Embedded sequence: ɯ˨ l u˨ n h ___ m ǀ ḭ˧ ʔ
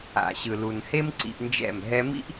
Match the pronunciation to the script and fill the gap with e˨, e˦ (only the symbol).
e˦